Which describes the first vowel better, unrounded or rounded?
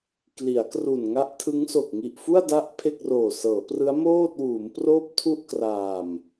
unrounded